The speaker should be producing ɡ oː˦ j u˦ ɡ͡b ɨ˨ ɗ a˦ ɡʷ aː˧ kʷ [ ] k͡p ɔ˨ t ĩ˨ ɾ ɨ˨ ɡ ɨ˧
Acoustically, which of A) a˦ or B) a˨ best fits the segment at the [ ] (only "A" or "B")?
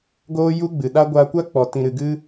A